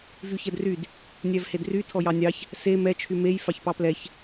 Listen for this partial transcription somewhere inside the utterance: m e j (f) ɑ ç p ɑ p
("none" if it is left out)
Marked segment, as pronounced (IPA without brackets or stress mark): f